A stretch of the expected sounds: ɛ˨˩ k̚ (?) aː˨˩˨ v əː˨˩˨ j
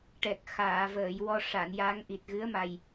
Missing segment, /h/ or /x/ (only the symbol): x